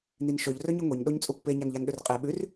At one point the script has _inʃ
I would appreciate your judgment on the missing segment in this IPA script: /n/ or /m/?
n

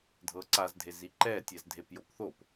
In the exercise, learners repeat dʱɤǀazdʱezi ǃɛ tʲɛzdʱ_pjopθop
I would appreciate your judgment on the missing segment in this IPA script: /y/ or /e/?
e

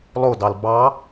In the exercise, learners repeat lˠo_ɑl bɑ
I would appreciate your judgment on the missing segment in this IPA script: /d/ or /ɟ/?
d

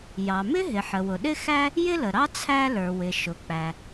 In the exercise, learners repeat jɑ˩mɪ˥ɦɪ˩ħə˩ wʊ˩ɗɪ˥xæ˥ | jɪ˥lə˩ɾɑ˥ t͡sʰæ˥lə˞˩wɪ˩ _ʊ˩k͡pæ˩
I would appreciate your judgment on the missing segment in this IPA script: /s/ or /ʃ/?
ʃ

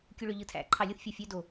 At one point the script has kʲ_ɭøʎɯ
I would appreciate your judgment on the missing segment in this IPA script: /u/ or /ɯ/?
u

